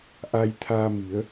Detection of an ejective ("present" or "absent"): absent